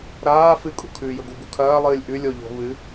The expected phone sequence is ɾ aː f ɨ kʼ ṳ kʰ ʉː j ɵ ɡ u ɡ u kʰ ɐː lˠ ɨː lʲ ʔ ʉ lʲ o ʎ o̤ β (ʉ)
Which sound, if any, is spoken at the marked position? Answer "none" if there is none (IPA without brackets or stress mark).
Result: ɨ